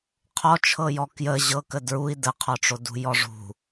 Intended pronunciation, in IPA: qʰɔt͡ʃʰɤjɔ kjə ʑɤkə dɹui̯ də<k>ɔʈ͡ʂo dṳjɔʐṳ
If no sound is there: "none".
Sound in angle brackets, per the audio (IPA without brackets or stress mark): qʰ